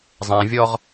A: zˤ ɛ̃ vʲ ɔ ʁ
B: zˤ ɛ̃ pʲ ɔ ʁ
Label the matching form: A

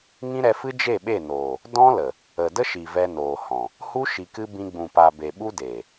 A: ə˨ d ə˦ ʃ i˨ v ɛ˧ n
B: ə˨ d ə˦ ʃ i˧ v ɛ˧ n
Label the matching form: A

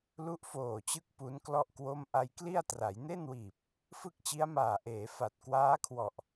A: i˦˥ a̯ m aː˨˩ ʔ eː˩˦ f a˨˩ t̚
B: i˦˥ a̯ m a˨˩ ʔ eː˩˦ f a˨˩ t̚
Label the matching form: A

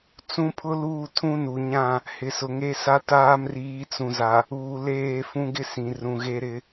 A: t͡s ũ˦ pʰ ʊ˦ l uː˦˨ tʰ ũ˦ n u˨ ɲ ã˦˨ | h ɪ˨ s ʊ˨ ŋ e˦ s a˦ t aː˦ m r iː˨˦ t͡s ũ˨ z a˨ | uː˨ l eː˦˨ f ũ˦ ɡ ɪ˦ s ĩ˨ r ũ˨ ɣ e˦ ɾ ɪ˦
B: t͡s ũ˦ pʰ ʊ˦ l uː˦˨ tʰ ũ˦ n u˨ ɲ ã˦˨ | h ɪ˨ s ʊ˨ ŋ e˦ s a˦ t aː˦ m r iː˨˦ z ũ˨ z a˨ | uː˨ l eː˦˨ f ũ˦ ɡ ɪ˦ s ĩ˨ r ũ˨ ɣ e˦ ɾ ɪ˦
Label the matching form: A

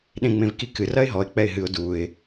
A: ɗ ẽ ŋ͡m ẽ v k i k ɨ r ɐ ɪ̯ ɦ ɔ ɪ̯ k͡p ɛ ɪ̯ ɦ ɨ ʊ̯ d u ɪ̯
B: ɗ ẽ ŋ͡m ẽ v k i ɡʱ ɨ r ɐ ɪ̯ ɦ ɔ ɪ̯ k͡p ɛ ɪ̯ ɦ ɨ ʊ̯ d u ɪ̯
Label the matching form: A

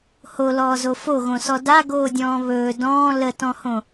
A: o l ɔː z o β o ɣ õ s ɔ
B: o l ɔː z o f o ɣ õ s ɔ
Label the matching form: B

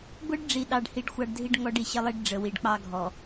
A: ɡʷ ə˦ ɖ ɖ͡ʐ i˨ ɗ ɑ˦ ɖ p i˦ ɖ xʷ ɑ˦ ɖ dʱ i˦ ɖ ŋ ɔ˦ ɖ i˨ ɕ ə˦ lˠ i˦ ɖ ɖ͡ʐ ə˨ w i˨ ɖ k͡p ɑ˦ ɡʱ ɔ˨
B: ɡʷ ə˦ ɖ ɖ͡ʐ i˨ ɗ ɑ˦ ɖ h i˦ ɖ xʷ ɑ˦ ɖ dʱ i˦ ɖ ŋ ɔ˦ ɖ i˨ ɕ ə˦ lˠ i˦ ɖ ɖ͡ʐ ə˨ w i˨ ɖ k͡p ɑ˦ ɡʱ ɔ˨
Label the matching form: B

